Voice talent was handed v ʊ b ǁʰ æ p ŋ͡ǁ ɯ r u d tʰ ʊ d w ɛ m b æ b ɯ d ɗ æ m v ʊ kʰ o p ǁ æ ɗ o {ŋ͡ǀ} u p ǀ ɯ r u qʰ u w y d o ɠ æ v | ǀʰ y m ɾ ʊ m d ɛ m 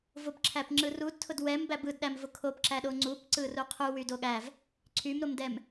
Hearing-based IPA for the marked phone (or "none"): ŋ͡ǀ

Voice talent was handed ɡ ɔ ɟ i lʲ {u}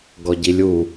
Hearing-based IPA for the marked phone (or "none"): u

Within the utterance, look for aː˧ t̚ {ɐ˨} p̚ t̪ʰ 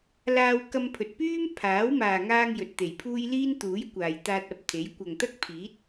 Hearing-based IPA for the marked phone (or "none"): ɐ˨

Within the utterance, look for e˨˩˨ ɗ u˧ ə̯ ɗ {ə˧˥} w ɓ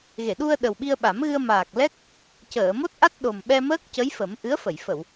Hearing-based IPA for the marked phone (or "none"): ə˨˩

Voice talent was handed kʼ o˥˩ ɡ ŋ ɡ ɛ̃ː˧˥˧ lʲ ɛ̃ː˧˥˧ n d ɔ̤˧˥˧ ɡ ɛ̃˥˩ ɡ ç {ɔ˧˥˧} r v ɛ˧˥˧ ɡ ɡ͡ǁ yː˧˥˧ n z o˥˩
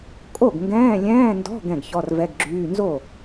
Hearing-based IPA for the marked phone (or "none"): ɔ˧˥˧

